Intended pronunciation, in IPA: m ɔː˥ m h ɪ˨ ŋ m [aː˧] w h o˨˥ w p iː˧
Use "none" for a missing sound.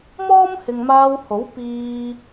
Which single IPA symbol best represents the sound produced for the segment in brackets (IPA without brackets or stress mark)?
aː˧